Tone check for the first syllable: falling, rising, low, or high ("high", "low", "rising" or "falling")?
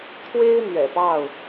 high